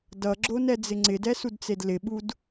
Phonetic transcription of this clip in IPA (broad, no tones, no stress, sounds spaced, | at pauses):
d ʌ ɡ͡ǁ o n ɛ d͡z ɪ ŋ͡ǀ ɪ d ɛ s u d t͡s e d l ɪ ɓ u d